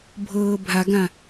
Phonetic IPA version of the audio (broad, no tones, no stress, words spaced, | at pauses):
bʱɤːbʱaɡã